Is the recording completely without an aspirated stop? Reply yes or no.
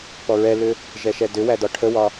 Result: no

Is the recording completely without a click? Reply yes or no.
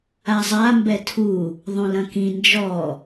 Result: yes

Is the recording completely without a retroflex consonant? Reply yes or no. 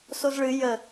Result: no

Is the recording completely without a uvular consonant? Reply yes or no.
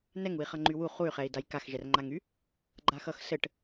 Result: no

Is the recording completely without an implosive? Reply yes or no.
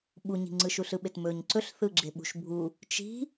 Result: no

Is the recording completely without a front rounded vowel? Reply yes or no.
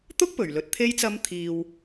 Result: yes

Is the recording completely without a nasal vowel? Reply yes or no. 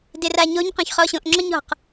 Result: no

